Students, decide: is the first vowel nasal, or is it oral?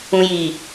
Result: nasal